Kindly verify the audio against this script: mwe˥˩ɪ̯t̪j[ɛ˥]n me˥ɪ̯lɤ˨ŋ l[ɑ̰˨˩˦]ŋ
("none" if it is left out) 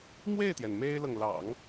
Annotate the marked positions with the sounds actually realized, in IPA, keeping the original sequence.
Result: ɛ˩, ɑ̰˨˩˦

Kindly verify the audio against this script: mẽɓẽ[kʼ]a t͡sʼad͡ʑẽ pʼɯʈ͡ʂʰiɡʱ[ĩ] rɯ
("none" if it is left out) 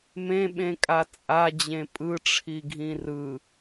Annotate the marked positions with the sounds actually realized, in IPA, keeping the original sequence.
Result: kʼ, ĩ

